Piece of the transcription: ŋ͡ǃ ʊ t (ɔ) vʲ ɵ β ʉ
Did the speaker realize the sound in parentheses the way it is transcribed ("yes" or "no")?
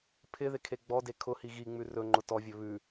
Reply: yes